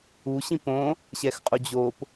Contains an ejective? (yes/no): yes